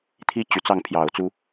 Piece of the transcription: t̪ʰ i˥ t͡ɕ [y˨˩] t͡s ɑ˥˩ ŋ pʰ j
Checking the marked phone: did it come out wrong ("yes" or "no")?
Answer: no